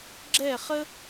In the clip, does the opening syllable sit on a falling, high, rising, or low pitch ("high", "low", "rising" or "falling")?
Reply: falling